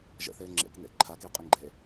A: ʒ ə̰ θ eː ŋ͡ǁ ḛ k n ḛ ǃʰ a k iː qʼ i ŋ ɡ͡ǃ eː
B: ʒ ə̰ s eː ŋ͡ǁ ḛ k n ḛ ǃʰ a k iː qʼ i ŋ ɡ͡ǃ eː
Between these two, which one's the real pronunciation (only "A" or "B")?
A